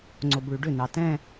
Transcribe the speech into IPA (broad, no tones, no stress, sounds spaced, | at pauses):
ŋ͡ǀ o b ɭ y ɖ ʏ n ɑ t ɛ̃